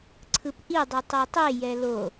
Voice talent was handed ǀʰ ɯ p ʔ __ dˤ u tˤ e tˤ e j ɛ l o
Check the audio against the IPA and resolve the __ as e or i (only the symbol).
i